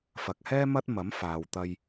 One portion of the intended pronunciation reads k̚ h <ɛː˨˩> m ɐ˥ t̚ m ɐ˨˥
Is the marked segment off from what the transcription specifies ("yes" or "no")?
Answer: yes